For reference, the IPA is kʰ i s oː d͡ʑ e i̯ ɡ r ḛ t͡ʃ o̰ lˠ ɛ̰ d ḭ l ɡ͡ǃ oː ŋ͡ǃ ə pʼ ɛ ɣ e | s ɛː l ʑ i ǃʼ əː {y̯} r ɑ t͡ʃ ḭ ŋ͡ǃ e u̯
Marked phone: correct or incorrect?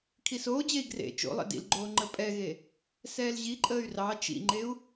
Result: correct